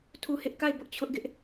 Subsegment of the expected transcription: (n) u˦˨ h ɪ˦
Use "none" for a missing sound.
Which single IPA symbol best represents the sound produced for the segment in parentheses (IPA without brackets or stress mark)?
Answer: tʰ